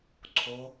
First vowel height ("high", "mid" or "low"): mid